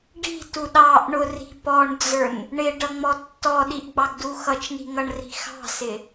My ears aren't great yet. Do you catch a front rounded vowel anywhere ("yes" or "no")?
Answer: no